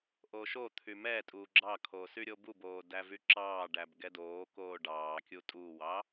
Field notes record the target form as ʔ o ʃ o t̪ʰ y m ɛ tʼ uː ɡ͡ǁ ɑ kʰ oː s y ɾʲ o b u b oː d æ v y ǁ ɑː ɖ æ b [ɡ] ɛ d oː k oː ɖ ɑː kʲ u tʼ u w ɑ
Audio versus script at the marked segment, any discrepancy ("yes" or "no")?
no